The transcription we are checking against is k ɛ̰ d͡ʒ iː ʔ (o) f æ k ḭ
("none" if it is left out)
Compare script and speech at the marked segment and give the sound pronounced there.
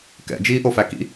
o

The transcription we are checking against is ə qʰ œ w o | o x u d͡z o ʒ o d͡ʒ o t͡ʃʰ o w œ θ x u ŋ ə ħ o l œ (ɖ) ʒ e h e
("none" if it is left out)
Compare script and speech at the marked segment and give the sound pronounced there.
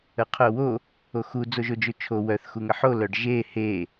ɖ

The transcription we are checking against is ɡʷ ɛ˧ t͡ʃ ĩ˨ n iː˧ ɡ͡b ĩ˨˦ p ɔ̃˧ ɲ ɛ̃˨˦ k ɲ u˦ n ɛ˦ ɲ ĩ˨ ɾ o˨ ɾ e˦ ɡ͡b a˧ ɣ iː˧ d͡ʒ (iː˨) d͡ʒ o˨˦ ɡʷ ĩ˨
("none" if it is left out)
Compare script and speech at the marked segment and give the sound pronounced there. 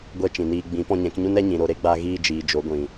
iː˨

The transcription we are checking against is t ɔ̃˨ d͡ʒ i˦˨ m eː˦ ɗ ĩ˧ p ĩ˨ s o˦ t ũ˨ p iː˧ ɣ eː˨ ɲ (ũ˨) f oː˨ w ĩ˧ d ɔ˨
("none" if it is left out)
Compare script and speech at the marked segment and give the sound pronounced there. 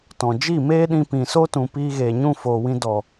ũ˦˨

